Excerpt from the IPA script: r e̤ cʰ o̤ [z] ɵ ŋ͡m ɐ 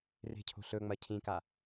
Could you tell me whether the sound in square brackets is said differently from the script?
yes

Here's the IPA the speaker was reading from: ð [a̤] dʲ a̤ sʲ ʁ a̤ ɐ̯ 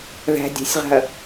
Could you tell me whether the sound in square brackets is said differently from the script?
yes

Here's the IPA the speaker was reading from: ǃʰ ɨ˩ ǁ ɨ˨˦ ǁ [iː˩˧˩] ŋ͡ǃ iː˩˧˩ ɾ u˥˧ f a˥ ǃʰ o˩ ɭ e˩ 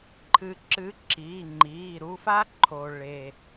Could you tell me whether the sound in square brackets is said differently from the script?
no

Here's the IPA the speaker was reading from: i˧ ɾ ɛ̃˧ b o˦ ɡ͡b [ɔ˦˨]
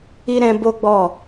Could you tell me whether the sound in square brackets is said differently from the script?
no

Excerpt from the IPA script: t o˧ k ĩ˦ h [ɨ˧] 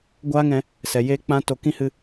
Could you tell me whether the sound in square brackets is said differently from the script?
no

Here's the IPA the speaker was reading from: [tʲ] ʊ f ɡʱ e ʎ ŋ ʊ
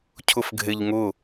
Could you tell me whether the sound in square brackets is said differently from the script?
yes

